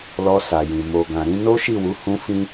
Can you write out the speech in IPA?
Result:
lɔ˧sa˨jĩ˨ mo˨ɡã˨ ɾĩ˧no˦ ʃi˦˨wu˨˦ hũ˦fĩ˦

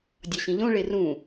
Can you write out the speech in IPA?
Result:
dʲɒɕĩʎõ ɭerũ

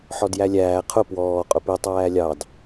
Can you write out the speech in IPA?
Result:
ħɔdjælʲæː qʰʊ pwɔː qʼʊpi tˤæːlʲɑd

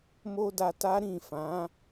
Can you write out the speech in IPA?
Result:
mo˦da˧ta˦ ɾĩ˦˨fã˨˦

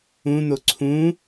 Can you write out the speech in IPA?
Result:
ũn̪o ǀʰũ

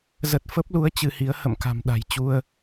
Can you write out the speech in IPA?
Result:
zə˨˩t̚ fə˦˥p̚lu˨˦ə̯ t͡ɕɨ˧hi˨˦ə̯ hə̰˧˨mka̤˨˩m ɗa̤˨˩jt͡ɕu˧ə̯

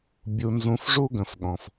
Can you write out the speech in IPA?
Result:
bʲu˧nzũ˧fʐu˦ ɡə̃˧fɠɔ̃˧f

